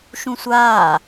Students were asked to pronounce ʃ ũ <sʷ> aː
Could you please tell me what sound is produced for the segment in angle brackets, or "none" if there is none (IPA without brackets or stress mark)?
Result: sʷ